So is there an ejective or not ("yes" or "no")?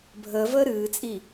yes